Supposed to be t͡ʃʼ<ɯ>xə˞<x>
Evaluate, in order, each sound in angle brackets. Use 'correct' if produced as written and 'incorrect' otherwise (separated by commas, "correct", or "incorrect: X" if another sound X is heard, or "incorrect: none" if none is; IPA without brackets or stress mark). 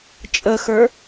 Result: incorrect: ə, incorrect: none